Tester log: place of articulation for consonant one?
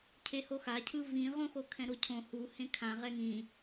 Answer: palatal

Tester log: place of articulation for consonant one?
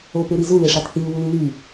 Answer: labial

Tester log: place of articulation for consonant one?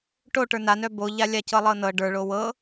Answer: retroflex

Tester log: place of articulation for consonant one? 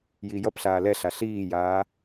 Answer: palatal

